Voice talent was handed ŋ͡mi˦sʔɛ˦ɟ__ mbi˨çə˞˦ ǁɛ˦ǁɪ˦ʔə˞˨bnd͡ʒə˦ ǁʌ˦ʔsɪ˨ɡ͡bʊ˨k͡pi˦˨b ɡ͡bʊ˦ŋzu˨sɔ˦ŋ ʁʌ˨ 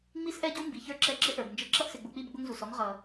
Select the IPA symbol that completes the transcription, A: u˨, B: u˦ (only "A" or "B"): B